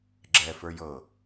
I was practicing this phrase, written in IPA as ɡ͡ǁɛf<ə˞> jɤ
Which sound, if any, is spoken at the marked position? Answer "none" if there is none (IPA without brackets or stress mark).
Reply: ə˞